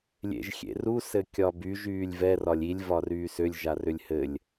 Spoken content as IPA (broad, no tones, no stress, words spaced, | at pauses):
lʲḛʒxʲḛru sɘkʲɒbyʒ yːlʲvɛr ɒlʲilʲ vɒryːsʏlʲ ʒarʏlʲhɘlʲ